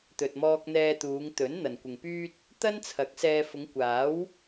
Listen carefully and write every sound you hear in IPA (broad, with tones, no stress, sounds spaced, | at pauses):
t̪ ɵ˨ t̚ m ɔː˧ k̚ n̪ ɛː˧ t̪ uː˨˧ ŋ t̪ ɵ˨˥ n n̪ ɐ˨ n kʷ ɪ˨ ŋ p yː˥ t̚ | t̪ ɐ˥ n t͡sʰ ɐ˨˥ k̚ s ɛː˧ f ʊ˨˧ ŋ kʷ aː˨˥ w